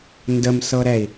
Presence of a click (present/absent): absent